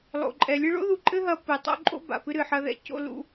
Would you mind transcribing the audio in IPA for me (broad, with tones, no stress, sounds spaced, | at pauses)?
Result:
lˠ o̰˨ ǃʼ ɛ˨ lʲ ɨ˦ ɭ o̰˦ ð u˨ ǃʼ ɘ˦ ɦ ɐ˨ p ɨ˨ tˤ o̰˦ ǃʼ o̰˦ b a̰˨ p ɨ˦ ɾ ɨ˨ ħ ɐ˦ ð ɛ̰˦ c o̰˦ l ṵ˦